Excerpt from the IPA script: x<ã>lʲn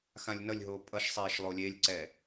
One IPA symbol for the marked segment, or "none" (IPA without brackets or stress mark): ã